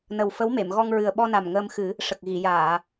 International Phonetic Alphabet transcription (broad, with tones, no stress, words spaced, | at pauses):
nə˨˩w fə˧˥wme˨˩˨mɣɔ˧ŋ ɹɨ˨˩ə̯ɓɔ˧na˨˩m ŋəː˧mxɨ˨˩˦ | ʂə˨˩k̚ ɣi˨˩˨jaː˨˩˨